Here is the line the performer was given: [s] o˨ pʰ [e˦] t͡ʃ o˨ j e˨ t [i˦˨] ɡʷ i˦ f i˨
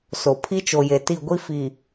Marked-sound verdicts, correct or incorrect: correct, incorrect: i˦, correct

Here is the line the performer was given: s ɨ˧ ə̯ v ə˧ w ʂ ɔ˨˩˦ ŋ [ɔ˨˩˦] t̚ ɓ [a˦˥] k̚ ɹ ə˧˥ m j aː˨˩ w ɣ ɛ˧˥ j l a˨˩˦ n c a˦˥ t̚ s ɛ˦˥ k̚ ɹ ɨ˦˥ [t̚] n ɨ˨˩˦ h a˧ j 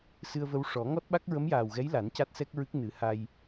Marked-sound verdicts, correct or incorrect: incorrect: ɔ˦˥, correct, incorrect: k̚

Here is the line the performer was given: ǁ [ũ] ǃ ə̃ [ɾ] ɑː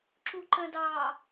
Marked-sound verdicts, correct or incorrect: incorrect: u, incorrect: d

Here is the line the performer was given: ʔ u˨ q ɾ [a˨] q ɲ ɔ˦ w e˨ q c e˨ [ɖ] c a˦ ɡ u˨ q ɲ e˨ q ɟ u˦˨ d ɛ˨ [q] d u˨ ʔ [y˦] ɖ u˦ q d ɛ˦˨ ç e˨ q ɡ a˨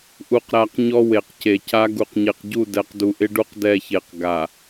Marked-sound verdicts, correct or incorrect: correct, incorrect: none, correct, incorrect: ɪ˦

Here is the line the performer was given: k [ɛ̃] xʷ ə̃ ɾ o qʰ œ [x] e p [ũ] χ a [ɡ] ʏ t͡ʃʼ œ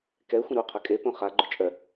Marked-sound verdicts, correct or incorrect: incorrect: ɛ, incorrect: kʼ, incorrect: õ, incorrect: ɡ͡ǃ

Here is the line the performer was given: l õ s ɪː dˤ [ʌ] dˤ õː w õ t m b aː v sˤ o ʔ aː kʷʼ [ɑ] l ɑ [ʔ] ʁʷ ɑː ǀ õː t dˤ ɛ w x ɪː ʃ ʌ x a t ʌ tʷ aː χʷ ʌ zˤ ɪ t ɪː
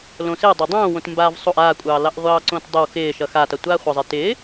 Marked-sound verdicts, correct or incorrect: incorrect: ɑ, incorrect: ɑː, correct

